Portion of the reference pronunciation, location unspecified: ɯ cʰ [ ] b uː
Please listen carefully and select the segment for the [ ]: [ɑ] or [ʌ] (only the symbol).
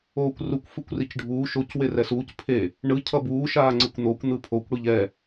ʌ